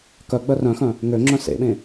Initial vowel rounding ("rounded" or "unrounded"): rounded